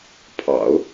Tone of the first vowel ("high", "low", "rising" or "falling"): low